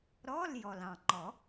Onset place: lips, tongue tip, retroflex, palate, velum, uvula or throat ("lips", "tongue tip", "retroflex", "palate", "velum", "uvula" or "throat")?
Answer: tongue tip